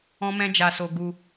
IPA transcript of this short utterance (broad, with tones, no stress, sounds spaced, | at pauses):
ɔ̃˦ m ɛ̃˦ d͡ʒ a˧ s o˧ ɡ u˧